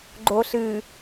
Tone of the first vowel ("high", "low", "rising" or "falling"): low